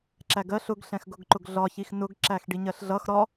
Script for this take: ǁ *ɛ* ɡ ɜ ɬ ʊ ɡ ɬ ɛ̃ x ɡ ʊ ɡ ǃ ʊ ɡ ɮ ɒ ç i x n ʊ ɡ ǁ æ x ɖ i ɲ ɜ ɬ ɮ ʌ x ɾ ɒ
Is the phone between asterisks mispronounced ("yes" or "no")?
yes